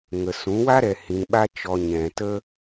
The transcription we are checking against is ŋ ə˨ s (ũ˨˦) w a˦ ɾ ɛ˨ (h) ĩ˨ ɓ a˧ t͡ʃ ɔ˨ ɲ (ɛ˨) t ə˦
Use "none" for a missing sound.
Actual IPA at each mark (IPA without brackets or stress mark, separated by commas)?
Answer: ũ˨˦, h, ɛ̃˨